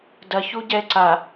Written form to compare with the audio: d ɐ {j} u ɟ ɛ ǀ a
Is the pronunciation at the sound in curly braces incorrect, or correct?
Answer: incorrect